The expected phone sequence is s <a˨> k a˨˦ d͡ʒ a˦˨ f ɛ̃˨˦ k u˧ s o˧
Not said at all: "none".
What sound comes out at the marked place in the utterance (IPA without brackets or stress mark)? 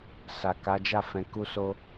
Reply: a˨